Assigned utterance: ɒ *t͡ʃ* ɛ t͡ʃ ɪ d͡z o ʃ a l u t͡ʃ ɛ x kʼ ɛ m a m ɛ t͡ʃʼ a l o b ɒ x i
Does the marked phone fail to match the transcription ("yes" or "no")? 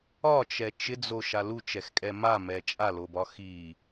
no